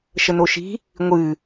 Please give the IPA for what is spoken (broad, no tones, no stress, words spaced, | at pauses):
ʃənoʃi̤ | ŋʷɨ